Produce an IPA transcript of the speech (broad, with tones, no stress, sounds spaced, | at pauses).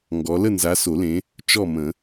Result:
ŋ ɡ ɔ˨˦ l ə˥˨ n z a˨˦ s o˨˩˦ l ẽ˨˦ | t͡ʃ ɔ˥˨ m ə̃˨˩˦